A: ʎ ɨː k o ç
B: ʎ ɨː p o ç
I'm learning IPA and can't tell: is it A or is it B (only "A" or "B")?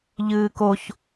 A